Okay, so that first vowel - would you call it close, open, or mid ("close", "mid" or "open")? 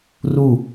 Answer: close